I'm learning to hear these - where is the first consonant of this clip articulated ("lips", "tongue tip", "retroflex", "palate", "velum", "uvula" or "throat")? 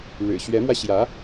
retroflex